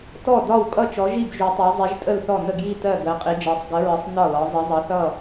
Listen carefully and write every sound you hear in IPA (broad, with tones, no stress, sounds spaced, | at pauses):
t ɔ˥˩ d ɒ˥˩ w kʼ ʌ˥˩ t͡ʃ ɔ˨˥ ʒ i˥˩ b ʒ u˨˥ tˤ ɜ˨˥ zˤ i˨˥ ʒ tʼ ə˥˩ l θ ɔ˥˩ n ə˥˩ ɡ j i˥˩ t ɜ˥˩ ɡ ɜ˨˥ qʼ i˨˥ d͡ʒ ɜ˨˥ sˤ ɡ ə˨˥ ɹ ə˨˥ sˤ n ɒ˥˩ l ɒ˨˥ zˤ ə˨˥ zˤ ʌ˨˥ θ ʌ˥˩